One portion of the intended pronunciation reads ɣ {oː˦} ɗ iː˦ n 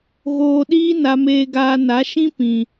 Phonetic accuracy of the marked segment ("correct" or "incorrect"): incorrect